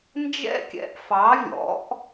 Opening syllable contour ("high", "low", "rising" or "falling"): high